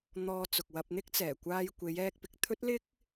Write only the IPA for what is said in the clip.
n̪ɔː˧t͡sʊ˨k̚wɐ˧p̚n̪ɪ˥k̚ t͡sɛː˨˩kʷaː˧jkʷe˨˧j ɛː˧k̚pɪ˨k̚t̪ʰɵ˥t̚lɪ˥k̚

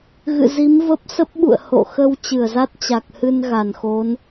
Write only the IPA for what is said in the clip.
ɣɨ̰˧˨zi˨˦mvə˦˥p̚ sə˦˥p̚ɓṵ˧˨ə̯ ho̰˧˨ xə˧w t͡ɕɨ˧˩ə̯za˦˥t̚ t͡ɕa˨˩k̚hɨ˧n ɣa˧˩nxo˨˦n

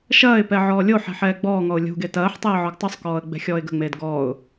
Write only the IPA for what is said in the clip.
ʃɐːɪ̯pɛ ʕɔːlʲoħɛ̤ ħɛːɡ͡bɔːŋɔʊ̯ lʲṳɡe tɐːħtˤeː ʕɔɡtˤusˤkɔːə̯ ɡ͡bɛ̤xʲɔːɪ̯ɡə̤ŋ͡meːd ɡɔːʊ̯

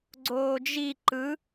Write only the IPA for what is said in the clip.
ɡ͡ǀoːd͡ʒi ǃɯ

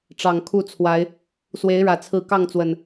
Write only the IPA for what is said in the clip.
ʈ͡ʂɑ˨˩ŋkʰu˥˨t͡sʰwa˨˦ɪ̯ | swe˨˦ɪ̯ɻä˨˩t͡sʰɹ̩˨˦ kɑ˥˨ŋt͡swə˨˩n

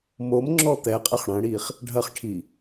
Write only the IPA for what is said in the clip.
momŋ͡ǁɔ t̪ɛqʼɛχ ɽɐ̃ɽiχ | ɖʱɐχʈʰi

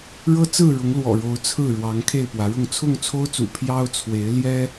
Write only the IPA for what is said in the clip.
ɻɤ˦t͡sɹ̩˥˨ ɻʊ˨˦ŋ lwɔ̰˨˩ɻo˨˦ʊ̯ t͡sʰɹ̩˥˨ɻwɑ˨˦ŋ kʰe˥˨ɪ̯pwä˨˦ɻʊ˥˨ŋ t͡sʰʊ˥˨ŋt͡sʰo˦ʊ̯t͡sṵ˨˩ pʰjɑ˦ʊ̯t͡sʰwe˨˦ɪ̯ ljɛ˦

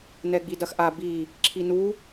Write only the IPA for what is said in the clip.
nɛɡ͡bidɐxʔa bi | ǁʰinu

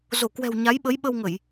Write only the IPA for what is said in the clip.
zo˧˩kwɛ̤˨˩w ɲa˨˦jɓə˨˦j ɓə˧wŋə˧˩˨j

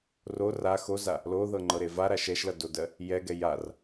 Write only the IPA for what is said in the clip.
ro ra xoza | loðɤŋ͡ǃɤɾe vaɾaʃ ɛʃlʌdodɜ | jɛɡɛ jar

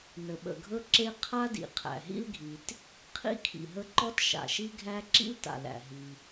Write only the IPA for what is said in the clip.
nə˩ɓə̰˩ɡʱɵ˥ ǁe˥ qʰa˥dḭ˩ qʰæ̰˩ɦḭ˥lɡʱi˩t | qʰḭ˥kʰḭ˩ɦə˥ ǃɔ˥tʃa̰˩ʃi˥ɡʱæ˥ ǁḭ˥lta̰˩ læ̰˩ɦi˩

